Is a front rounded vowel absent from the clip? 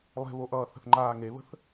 yes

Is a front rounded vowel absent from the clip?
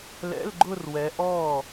yes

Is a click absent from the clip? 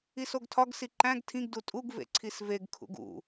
no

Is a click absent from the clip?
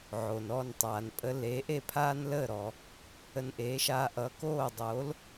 yes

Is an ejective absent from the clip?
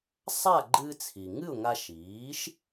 yes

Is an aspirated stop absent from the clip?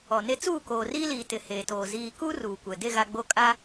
yes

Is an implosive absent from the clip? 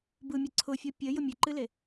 yes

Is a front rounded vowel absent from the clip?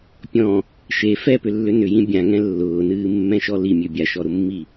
no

